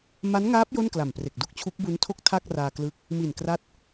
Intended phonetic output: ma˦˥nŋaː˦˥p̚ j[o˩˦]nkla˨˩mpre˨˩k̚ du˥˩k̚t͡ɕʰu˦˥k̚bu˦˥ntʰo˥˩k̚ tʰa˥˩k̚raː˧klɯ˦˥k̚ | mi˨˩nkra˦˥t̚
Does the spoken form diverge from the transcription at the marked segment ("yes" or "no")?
yes